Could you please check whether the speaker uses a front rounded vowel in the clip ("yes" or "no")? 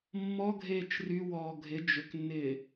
yes